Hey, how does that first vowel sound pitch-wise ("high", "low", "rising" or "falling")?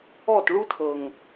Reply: falling